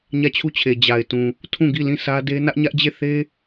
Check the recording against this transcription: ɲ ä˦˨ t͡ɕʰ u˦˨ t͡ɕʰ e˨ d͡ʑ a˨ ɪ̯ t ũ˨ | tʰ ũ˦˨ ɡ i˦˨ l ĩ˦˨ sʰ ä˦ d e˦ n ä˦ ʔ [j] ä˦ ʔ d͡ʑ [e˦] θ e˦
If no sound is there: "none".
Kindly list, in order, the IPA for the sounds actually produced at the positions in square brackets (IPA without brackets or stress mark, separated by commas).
ɲ, e˦˨